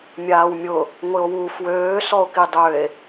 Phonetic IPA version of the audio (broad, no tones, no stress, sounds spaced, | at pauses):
mʲ aː w mʲ ʊ | ŋʷ ɪ o̯ w u f w øː s ɔ o̯ k i dˤ ø e̯